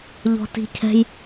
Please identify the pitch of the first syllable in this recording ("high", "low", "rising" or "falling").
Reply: high